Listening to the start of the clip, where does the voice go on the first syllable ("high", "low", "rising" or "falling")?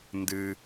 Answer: high